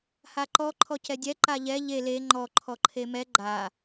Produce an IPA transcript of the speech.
h a ǃ ɔ ǃʰ ɔ c ɛ dʲ ɛ ǃ a ʎ ɛ ʎ e l e ŋ͡ǃ ɔ ǃʰ ɔ ǃʰ e m ɛ ɡ͡ǃ a

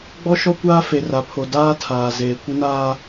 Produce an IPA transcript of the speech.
ɡ͡b ɔ˦ ʃ ɔ˦ kʷ aː˦ f e˨ r a˨ pʰ o˨ d aː˦ tʰ aː˨ z eː˨ kʷ ɪ˦ n aː˦

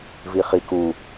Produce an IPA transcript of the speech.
v i χ i k u

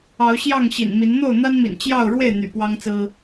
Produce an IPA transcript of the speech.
ɑ˨˦ ʊ̯ ɕ j ɑ˥˨ ŋ ɕ ḭ˨˩ n m i˨˦ n n̪ o˥˨ ʊ̯ n̪ a˦ n m ḭ˨˩ n t͡ɕ j ɑ˥˨ ʊ̯ ɻ w e˥˨ ɪ̯ n̪ y̰˨˩ p w ɑ˦ ŋ t͡s ɹ̩˦

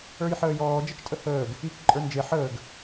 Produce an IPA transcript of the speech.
ə˞ j ħ əː j ɔː d͡ʒ ə t͡ʃ tʼ ə h əː ɡ | i k ǃʼ ə˞ n d͡ʒ e ħ əː ɡ

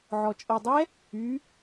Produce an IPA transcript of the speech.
ʕ ɔ t͡ʃʼ ɤ dˤ ɛ | y

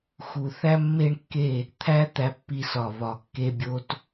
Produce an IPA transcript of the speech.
x u˨ θ æ˦ mː e˦ ɳ kː e˦˨ | t̪ʰ æ˦ t̪ æ˧ pː i˧ s ɒ˨ β ɒ˨ kː e˧ bʲ o˧ t

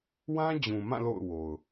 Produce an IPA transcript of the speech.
w ã˦ d͡ʑ ũ˨ m ã˦˨ l o̰˦˨ ʊ̯ w o˨ ʊ̯

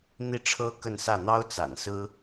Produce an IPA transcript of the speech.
n̪ i˥˩ ʈ͡ʂʰ ɤ˥ k ə˥˧ n s ä˥˩ n̪ ɑ˥ ʊ̯ t͡s a̰˨˩ n s ɹ̩˥

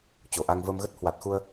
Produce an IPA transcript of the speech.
t͡ɕ o˨˩ ʔ a˧ ŋ v əː˧ m ɣ ə˦˥ t̚ h w a˨˩ t̚ x u˧ ə̯

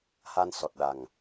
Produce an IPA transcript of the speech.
h a˧ n s ɔ˨˩ t̚ ɗ a˨˩ ŋ

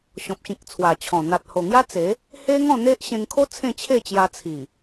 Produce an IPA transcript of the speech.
ɕ ɔ̃˨ p̚ ɕ ĩ˨ k̚ t͡sʰ w a˨˩ t͡ɕʰ ɔ̃˨˩ n̪ a˨ t̚ h o˨˩ ŋ j a˦ t͡s e˨˦ | h e˦ ŋ ɔ̃˥˧ n̪ e˦ ʔ ɕ ẽ˧ ŋ kʰ o˦ t͡sʰ ẽ˥˧ t͡ɕʰ e˥˧ t͡ɕ j a˧ t͡sʰ i˨˩

